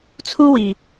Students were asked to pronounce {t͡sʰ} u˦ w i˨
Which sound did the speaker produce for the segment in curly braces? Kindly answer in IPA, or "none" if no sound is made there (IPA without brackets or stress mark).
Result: t͡sʰ